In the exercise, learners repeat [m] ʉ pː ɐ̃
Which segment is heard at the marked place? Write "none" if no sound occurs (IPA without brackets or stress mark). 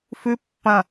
f